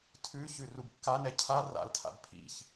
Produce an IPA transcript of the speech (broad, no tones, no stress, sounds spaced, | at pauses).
tʰ ʉ ç ʉ r u b kː a n ɛ cʰ a r a̰ l tʰ a̰ b pʰ ḭ ç